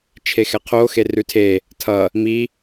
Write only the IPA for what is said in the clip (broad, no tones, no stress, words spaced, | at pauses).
t͡ʃʰexɛqʰo xerʉtʰe | tʰʌ | mi